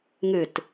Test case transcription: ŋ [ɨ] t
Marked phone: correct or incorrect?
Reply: correct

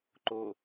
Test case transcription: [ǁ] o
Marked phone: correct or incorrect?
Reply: incorrect: ǃ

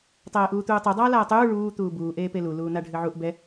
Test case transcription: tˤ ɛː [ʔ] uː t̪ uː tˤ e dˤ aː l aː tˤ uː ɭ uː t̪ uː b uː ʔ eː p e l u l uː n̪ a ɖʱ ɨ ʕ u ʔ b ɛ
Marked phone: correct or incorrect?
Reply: correct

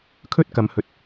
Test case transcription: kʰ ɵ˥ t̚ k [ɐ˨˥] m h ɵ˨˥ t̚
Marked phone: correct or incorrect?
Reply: incorrect: ɐ˨˧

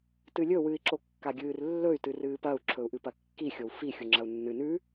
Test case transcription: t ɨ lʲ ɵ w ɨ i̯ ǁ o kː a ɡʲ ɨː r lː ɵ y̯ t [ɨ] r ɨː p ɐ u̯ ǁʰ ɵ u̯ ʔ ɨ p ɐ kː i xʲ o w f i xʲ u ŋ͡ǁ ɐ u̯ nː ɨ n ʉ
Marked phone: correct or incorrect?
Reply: correct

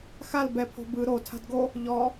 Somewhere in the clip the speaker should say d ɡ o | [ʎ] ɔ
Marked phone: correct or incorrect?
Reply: correct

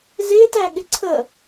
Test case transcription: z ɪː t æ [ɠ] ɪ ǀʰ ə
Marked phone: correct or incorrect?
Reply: correct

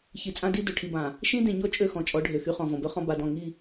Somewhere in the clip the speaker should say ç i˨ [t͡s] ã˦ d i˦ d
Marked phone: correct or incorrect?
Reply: incorrect: t͡sʼ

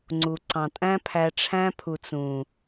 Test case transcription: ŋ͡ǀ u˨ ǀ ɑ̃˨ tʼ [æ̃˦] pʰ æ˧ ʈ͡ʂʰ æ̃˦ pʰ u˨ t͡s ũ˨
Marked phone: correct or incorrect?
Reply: correct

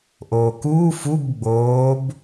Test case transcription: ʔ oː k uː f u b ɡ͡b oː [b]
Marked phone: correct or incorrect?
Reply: correct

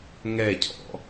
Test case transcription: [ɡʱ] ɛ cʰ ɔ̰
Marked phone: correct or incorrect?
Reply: incorrect: ŋ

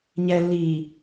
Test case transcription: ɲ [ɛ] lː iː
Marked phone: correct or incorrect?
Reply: correct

